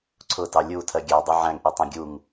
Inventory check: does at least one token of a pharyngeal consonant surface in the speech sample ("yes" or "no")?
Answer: yes